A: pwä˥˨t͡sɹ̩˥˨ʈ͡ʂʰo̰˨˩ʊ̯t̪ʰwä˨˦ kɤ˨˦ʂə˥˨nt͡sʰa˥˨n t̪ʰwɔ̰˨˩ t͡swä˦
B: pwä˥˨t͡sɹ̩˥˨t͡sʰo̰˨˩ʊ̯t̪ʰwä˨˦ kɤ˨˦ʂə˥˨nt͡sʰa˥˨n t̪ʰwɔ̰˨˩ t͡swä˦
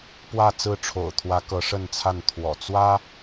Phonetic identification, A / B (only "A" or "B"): A